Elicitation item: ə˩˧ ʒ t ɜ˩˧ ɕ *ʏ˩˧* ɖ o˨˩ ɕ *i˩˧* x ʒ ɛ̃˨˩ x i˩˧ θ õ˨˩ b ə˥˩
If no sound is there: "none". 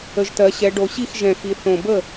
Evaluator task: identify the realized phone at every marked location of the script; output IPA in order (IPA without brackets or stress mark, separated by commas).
ɛ˩˧, i˥˩